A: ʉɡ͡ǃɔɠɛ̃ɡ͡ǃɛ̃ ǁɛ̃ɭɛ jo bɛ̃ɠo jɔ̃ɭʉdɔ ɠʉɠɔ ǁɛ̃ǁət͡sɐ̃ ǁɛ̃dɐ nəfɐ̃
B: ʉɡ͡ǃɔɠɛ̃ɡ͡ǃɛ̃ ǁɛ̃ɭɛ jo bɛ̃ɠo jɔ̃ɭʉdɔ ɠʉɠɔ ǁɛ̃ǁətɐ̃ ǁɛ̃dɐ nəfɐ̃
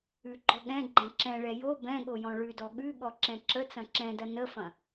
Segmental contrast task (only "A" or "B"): A